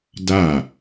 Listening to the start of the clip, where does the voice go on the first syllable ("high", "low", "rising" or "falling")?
falling